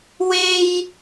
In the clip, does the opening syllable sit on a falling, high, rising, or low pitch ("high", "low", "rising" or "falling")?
high